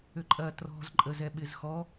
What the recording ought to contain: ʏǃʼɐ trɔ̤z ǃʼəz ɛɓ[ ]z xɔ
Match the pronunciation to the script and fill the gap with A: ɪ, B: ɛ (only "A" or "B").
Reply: A